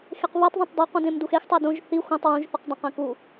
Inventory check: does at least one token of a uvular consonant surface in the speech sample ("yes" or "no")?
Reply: yes